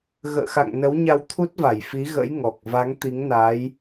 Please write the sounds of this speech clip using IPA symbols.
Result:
ɣə̰ː˧˨xa̰˧˨ŋ nə˨˦wɲa˧wt̪ʰu˦˥t̚va˧˩j fi˨˦ɣə̰˧˥j ŋɔ˨˩k̚ va˨˦ŋt̪i˨˦ŋnaː˨˦j

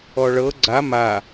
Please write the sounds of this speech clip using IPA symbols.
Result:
ɔɭɤ ɡ͡ǀa ma

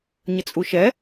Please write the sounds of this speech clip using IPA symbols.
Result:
ɲət͡sʼuʃɛ

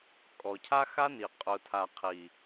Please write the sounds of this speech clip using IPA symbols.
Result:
kʼɔ˨ cʰa˦xa˦ni˨ qʼʊ˨tʰa˨ qʰi˨

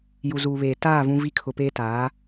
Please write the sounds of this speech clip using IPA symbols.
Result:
ju˨zuː˨βeː˨ taː˦˨ vũ˦vi˦ kʰʊ˨peː˦ taː˨˦

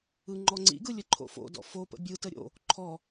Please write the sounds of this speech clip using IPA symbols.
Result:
ɯŋ͡ǃɔŋ͡ǀḭɡɯ lʲəǃʰo̰fo̰dɔ̰ fopə̰ bʲɯtə ɾʲo̰ | ǃʰɔ

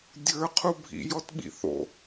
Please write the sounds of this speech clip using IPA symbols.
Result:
dʲə˞qʰu bʱḭjɔtɓḭ θo̰

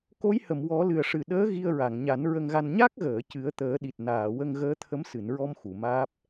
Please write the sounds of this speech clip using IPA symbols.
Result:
ko˧˥jhə˨˩˨m wɔ˨˩˦ lɨ˨˩ə̯ʂɨ˨˩ ɗəː˧˥ ɣi˧ə̯ɹa˨˩˨ŋɲa˨˩˦n ɹə˧ŋɣa˧n ɲa˦˥k̚ɣəː˨˩˨ cɨ˨˩˦ə̯t̪əː˨˩˦ɗi˨˩t̚ naː˨˩˨wə˧ŋ ɣəː˧˥t̪ʰə˧˥msɨ˨˩˨nɹɔ˧m xu˨˩˨maː˦˥p̚

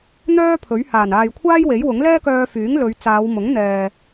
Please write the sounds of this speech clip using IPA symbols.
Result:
n̪œː˥ pʰɵ˨˥ɥ haː˨˩naː˨jkʷʰaː˥j we˨˥jwʊ˨˥ŋ lɛː˥kœː˧fyː˨˥ŋlɵ˨˧ɥ t͡saː˨˧wmʊ˨˥ŋ n̪ɛː˨

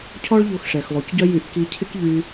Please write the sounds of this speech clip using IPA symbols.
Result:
cʰɔ˥ɭʎo˧xʂɛ˩x lˠu˩cɟœ˥jy˧ʔ ki˧cʰɪ˥kʎy˧

